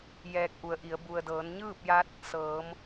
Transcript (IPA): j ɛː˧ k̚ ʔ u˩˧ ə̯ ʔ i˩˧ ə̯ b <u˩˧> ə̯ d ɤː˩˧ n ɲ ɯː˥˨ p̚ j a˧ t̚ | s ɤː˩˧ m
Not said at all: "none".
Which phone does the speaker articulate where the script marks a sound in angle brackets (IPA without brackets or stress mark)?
u˩